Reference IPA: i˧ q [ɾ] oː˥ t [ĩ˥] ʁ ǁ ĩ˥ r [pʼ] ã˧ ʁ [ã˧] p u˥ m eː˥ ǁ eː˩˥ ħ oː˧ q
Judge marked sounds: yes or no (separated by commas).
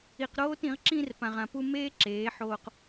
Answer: yes, no, no, yes